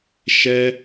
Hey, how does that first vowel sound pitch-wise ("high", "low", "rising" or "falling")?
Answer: high